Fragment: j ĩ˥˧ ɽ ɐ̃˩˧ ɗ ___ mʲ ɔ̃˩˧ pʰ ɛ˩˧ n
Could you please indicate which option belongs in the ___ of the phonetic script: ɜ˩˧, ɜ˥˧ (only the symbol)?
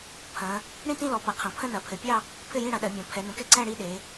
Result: ɜ˩˧